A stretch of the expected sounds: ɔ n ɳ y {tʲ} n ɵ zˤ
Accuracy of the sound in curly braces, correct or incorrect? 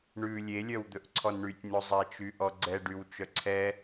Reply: correct